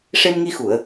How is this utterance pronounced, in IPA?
ʂ e˧ m ŋ i˧ x u˨˩˨ ə̯

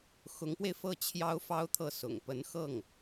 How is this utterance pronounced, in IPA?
x ʊ˧˥ ŋ p w e˧ ɪ̯ f ɤ˥˩ t͡ɕʰ j ɑ˥ ʊ̯ f ɑ˥ ʊ̯ t̪ʰ ɤ˥˩ s ʊ̰˨˩ ŋ p ə˧˥ n x ɤ˥˩ ŋ

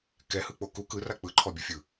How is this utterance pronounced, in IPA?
k ɛ h ɯ k͡p o k u k ɯ r a k͡p ɯ ǃʰ ɔ bʲ o fʲ ɯ

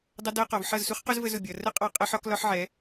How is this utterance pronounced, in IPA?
dˤ ʌ˦ d ɜ˦ q ɔ˨ v ħ ʌ˦˨ z s u˦ χ q ʊ˦ z v ə˦ z ʊ˨ bʲ ʌ˨ r ə˦ qʼ ɑ˦ qʼ ɜ˦ ħ ɒ˦ k l ɒ˦ ħ ʕ ɛ˨˦

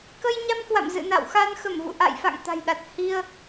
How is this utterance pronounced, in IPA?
k ə˧ j ɲ a˧ m k w a̰˧˨ m z ɨ̰˧˨ n a̰˧˨ w x a˧ n x ə˧˩ m v ṵ˧˨ ʔ a̰˧˨ j f a̰˧˨ ŋ t̪ a̤˨˩ j ɗ a˨˩ t̚ h i˧ ə̯

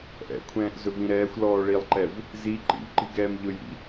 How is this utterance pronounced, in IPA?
ʔ ɛ̰ kʷʰ ɛ̃ː ʔ z ɵ v ĩ ɾ ɛː xʷ l ɔː ɭ i lˠ ǃ ɛ v | z i ǃ ḭ v ǃ i̤ ɡ ɛː m ʎ ɵ j ḭ

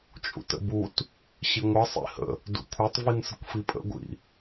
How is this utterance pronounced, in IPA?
t͡ʃʼ ṵ t ə̰ b u t | ɕ i ŋʷ ʌ sˤ ḭ h ə̰ | d ṵ kʷʰ œ tˤ v i n s ə kʷ f i pʼ ə̰ ɡʷ ḭ

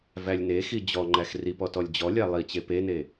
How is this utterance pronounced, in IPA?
v æ lʲ n e x i d͡ʑ ɔ ŋ͡ǃ æ x r i p ɔ t ɔ lʲ d͡ʑ ɔ lʲ æ lˠ i t͡ɕ e p e n e

